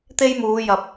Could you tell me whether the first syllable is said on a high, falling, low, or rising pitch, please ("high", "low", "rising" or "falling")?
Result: high